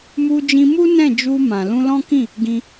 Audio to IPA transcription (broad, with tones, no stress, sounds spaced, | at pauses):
m u˧ d͡ʒ ĩ˧ m u˦ n ɛ̃˦˨ d͡ʒ u˧ m ã˨ l ũ˧ l ɔ̃˦ k ĩ˦˨ | ɡ ĩ˧